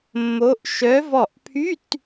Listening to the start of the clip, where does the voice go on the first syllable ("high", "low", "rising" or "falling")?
rising